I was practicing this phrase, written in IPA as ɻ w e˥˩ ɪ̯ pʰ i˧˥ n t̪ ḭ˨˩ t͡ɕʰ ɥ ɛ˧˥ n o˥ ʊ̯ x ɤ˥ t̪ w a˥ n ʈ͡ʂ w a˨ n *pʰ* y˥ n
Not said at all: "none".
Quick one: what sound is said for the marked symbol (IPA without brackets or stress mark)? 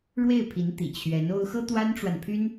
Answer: pʰ